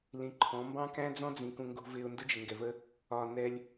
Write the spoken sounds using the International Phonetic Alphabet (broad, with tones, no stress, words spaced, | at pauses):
lĩ˨ǃʰɔ̃˨˦ mbɑ̃˦kæ̃˦ d͡zɔ̃˦d͡zĩ˨ kũ˨ŋɡṳ˨vɪː˨ʊ̯ ndʊ˦d͡ʒɪ˨ŋɡɛ˨və˦ | ɒ˨ nɛ˦lʲ